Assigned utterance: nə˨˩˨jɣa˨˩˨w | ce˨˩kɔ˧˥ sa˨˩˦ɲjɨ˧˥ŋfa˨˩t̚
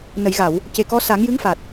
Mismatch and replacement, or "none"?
ɲ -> ŋ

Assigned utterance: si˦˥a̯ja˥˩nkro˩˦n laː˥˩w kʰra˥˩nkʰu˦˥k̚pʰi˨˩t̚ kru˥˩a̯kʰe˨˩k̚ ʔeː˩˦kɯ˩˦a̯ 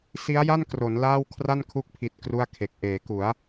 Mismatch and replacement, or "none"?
ɯ˩˦ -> u˩˦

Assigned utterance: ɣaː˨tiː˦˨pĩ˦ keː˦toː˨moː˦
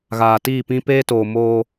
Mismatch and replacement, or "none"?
k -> p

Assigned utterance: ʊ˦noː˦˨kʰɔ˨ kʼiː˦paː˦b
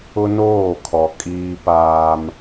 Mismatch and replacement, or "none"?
b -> m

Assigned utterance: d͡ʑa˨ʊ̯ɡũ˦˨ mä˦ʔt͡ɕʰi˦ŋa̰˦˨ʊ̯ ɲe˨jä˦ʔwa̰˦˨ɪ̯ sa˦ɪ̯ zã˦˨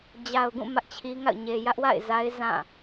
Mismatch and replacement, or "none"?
s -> z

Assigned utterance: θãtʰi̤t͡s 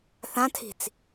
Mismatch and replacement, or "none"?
none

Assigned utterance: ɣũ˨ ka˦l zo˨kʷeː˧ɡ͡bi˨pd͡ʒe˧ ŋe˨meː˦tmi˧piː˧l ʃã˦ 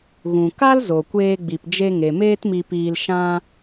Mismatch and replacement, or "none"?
none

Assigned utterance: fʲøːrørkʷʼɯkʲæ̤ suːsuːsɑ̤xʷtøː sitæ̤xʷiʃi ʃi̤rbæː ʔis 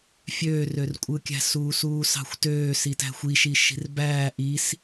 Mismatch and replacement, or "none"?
none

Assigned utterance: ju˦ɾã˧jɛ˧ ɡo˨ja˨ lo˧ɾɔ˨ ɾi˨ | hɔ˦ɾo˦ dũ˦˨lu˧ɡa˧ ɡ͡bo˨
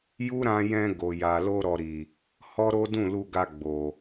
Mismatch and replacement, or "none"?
ɛ˧ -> ɛ̃˧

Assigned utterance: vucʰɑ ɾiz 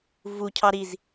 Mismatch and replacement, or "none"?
none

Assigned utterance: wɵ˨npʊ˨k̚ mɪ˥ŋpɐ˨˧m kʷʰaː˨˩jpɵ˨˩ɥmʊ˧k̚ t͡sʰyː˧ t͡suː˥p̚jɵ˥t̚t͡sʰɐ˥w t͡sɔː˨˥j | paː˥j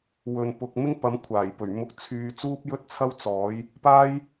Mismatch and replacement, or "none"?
none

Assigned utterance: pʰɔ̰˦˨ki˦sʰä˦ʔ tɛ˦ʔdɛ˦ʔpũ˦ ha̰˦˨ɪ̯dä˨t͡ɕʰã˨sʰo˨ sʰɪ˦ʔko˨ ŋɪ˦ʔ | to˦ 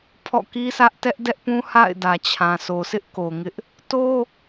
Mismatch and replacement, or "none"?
none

